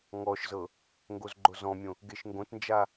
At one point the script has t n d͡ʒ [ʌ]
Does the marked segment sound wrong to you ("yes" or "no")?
yes